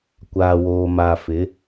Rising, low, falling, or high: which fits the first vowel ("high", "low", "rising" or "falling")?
low